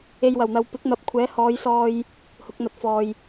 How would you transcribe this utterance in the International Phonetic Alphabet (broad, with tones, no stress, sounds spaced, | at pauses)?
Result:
e˨ j w ɐ˨˩ w n̪ ɐ˨ w p ɪ˨˥ k̚ n̪ ɐ˨ p̚ kʷʰ ɛː˨˥ h ɔː˨˧ j s ɔː˧ j | h ʊ˨˥ k̚ n̪ ɐ˧ t̚ f ɔː˨ j